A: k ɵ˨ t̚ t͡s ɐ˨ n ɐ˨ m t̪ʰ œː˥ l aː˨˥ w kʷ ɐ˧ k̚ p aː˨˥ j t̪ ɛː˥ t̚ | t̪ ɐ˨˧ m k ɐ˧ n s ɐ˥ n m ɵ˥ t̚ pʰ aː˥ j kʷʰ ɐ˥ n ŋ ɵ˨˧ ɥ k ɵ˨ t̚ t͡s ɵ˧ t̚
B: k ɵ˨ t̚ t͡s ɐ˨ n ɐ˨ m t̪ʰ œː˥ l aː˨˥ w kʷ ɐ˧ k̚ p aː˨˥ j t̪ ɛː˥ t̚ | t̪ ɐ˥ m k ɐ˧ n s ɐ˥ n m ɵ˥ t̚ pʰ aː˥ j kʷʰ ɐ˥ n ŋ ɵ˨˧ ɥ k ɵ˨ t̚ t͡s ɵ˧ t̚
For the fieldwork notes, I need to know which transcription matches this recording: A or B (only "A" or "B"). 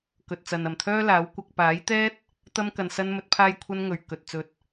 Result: B